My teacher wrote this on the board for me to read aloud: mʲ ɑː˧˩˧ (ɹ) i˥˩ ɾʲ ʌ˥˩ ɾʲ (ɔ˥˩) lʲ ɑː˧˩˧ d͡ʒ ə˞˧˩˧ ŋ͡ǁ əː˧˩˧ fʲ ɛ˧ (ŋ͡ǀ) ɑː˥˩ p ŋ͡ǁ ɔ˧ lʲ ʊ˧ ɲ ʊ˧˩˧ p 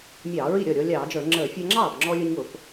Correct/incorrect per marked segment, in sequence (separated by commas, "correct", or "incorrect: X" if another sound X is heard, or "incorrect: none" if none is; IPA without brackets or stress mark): correct, incorrect: ɔ˧, incorrect: ŋ͡ǁ